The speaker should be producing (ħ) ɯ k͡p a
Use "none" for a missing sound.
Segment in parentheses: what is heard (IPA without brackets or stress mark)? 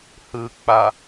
h